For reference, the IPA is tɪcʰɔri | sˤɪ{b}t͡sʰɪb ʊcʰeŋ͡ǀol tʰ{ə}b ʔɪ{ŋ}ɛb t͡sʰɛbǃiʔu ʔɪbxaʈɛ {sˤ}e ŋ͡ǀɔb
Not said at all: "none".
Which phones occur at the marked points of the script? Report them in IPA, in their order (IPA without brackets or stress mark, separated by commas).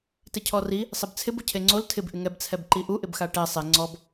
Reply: b, ɪ, ŋ, sˤ